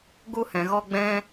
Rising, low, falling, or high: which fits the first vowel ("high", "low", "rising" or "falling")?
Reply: high